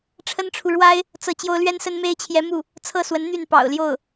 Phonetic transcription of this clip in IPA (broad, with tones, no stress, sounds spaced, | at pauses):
ʈ͡ʂʰ ə˥ n ʈ͡ʂʰ u˨ ɻ w a˥ ɪ̯ | t͡s ɤ˥˩ t͡ɕ j o˥ ʊ̯ l ɥ ɛ˥ n s ə˥ n m e˥ ɪ̯ t͡ɕʰ j ɛ˧˥ m u˥˩ | t͡sʰ ɤ˥˩ s w ə˧˥ n n̪ y˥˩ n p ɑ̰˨˩ ʊ̯ l j o˥˩ ʊ̯